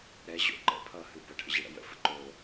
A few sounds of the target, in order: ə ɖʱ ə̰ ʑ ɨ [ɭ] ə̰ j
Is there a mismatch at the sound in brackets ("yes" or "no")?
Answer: yes